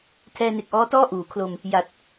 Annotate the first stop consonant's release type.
aspirated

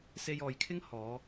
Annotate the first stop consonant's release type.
aspirated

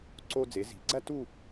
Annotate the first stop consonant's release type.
click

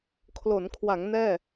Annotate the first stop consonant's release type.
aspirated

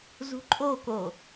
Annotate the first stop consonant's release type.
click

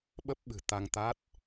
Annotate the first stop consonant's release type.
implosive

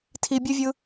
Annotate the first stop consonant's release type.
aspirated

